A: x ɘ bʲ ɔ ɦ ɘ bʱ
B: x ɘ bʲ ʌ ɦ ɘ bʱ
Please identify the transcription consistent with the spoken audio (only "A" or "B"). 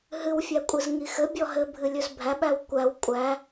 A